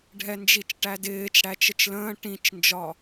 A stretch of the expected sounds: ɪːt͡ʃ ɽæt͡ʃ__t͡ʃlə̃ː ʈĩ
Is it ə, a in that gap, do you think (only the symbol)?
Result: ə